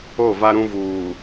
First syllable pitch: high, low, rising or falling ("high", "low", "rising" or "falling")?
falling